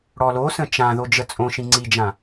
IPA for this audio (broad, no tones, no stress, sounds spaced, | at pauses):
ɽ ɔ l o s ə̃ t͡ʃ ã ð o d͡ʒ ə t͡sʼ õ ʃ ĩ ŋ͡ǀ i d͡ʒ ã